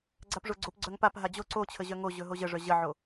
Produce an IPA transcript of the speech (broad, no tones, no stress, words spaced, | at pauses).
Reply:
ɡ͡ǀapʐoɡ͡ǀop ɡ͡ǀœŋpap ɦad͡ʑo ǀot͡ɕʰəʑœ ŋoʑɵ ɦoʑəʐœ ʑəʕo